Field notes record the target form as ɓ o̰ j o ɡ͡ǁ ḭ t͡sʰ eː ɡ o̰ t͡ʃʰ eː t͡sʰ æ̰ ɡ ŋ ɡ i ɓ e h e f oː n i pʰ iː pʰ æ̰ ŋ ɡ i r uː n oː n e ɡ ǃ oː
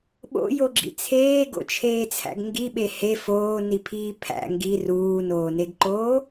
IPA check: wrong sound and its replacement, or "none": none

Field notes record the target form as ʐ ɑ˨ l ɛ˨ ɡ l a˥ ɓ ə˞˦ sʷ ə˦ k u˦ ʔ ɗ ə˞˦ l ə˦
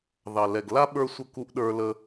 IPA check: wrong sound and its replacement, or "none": ʐ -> ð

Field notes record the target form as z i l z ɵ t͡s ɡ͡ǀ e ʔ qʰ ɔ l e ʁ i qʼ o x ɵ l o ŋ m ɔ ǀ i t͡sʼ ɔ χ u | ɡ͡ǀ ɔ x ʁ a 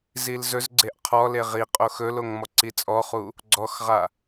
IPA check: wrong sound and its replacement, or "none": t͡s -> z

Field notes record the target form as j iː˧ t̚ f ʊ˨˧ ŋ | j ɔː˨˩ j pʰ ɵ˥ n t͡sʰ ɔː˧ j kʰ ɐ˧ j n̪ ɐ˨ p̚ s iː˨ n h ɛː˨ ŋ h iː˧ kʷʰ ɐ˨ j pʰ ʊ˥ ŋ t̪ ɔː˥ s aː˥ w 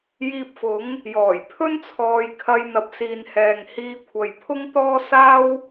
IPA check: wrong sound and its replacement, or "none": t̚ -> p̚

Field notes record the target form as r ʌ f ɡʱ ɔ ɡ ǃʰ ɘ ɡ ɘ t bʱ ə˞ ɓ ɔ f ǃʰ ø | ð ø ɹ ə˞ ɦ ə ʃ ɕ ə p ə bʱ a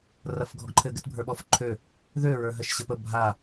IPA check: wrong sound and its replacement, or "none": none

